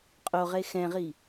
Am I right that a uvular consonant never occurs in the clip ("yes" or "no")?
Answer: no